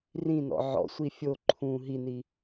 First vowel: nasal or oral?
nasal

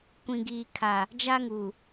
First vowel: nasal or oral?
nasal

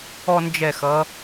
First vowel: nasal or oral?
oral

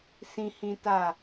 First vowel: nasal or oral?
nasal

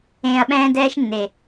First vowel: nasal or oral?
nasal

